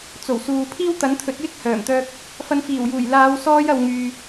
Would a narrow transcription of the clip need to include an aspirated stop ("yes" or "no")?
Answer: yes